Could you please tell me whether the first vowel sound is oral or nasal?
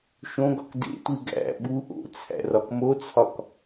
nasal